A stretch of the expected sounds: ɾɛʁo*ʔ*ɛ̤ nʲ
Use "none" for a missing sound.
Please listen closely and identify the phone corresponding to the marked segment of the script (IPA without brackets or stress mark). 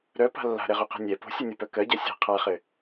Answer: q